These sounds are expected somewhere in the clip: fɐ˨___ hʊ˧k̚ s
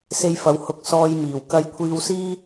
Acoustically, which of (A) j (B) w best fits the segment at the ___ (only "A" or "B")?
B